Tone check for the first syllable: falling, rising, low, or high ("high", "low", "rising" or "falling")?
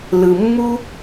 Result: low